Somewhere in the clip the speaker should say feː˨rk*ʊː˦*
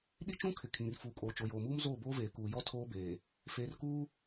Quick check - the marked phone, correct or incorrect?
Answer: incorrect